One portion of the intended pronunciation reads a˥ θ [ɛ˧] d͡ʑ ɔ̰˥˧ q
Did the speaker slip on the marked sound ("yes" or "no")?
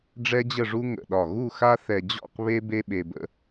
no